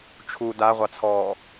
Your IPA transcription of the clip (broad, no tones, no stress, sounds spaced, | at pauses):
t͡ʃʰ u d a ʁʷ ɑ t͡sʰ ɔː